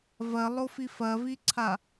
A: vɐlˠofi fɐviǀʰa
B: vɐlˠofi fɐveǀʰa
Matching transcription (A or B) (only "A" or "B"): A